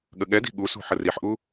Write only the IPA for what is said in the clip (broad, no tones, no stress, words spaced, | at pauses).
ɠəɠɛdi̤ ɠusṳ ħəriħʔu